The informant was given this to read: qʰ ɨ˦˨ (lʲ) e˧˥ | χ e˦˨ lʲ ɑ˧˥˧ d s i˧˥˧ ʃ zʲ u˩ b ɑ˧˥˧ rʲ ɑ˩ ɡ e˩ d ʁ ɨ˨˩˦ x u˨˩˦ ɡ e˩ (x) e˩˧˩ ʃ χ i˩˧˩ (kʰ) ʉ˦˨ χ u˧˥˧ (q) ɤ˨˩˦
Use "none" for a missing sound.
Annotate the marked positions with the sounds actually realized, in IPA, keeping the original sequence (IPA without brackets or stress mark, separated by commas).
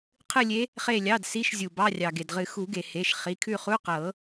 lʲ, h, kʰ, q